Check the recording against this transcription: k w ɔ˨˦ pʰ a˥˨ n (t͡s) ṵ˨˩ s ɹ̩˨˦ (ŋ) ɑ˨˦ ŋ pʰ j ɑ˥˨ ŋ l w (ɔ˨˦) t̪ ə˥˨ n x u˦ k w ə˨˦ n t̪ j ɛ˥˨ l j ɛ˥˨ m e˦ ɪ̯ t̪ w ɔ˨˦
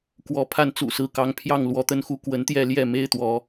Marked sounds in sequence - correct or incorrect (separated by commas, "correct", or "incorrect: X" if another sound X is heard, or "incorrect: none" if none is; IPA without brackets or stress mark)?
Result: correct, incorrect: k, correct